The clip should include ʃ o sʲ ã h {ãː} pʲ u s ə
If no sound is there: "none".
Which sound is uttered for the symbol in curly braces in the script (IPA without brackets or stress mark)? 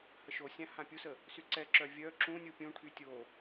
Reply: ã